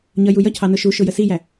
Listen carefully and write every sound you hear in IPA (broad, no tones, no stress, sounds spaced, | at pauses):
ɲ ʌ j u j ʌ cʰ ɑ n ʊ ʃ u ʃ ʊ j ə s i j æ